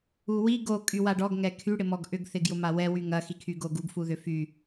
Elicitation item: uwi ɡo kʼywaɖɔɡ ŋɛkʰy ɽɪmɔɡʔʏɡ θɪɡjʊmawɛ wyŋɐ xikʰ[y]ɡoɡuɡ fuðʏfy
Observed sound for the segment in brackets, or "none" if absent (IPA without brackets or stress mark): y